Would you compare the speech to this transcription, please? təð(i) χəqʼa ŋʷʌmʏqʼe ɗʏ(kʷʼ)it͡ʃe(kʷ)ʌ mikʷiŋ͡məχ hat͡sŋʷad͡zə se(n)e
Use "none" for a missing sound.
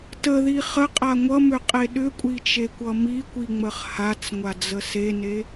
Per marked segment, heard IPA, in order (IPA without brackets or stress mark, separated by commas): i, kʷʼ, kʷ, n